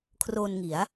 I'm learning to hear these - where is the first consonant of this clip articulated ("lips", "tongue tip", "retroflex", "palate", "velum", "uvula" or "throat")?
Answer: velum